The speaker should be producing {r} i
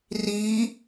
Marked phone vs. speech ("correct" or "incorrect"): correct